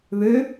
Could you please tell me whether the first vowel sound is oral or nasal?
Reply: oral